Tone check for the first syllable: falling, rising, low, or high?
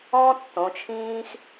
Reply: high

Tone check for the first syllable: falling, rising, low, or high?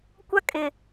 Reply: high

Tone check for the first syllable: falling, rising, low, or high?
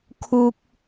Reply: high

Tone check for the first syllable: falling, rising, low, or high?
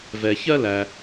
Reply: low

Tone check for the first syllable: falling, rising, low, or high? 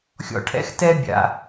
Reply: low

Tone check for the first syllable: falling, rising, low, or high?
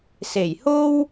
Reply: low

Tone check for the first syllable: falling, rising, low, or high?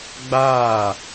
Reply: falling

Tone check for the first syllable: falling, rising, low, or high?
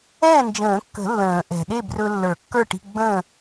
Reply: falling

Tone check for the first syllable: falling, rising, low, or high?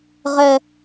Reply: high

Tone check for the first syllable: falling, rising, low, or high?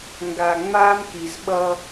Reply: low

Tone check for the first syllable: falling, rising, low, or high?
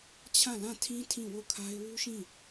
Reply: falling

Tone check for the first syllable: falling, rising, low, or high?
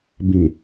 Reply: low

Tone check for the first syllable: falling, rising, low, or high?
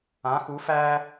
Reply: rising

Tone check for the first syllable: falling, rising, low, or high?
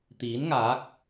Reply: rising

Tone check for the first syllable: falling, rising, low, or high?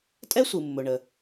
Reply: high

